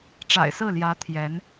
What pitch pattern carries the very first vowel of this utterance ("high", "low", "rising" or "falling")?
low